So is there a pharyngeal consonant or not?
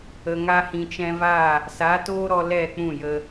no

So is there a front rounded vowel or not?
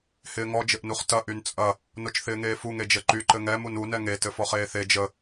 yes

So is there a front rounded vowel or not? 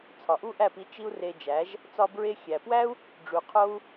no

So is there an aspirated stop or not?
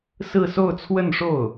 yes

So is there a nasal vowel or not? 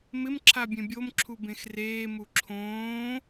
yes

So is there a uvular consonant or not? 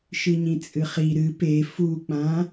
yes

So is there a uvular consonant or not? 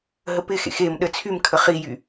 yes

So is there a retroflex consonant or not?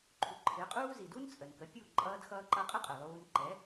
no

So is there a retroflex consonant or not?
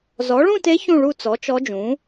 yes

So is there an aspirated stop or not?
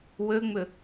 no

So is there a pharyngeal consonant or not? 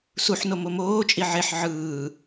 yes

